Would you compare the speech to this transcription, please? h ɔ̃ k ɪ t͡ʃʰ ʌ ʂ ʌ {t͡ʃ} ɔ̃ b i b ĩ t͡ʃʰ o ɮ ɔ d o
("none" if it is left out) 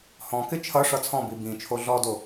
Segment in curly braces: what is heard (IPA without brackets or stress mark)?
t͡sʰ